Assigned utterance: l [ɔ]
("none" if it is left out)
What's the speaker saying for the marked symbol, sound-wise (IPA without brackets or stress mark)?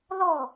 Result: ɔ